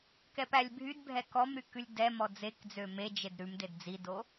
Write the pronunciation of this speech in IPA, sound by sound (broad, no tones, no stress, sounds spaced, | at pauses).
k ɛ p æ lʲ bʱ y d bʱ ɛ k ɔ m ɾ y k ʉ lʲ d ɛ m ɔ d͡z e k d͡z ø m e d͡ʒ e d ɾ ʉ m d e d d͡z i d o